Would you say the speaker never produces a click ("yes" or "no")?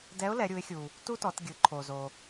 no